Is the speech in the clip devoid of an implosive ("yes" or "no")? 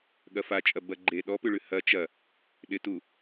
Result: no